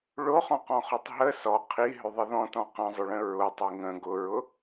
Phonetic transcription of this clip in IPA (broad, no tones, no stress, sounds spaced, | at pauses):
ɭ o χ ɔ̃ q ɔ̃ χ o tˤ ɦ ə s ɔ qʰ i ɦ ʏ ðˤ ə ð ɔ̃ t ɔ̃ q ə̃ zˤ ʊ ɭ ə̃ ɹ ʊ tˤ i ŋ ə̃ ɡ ʊ ɹ ʊ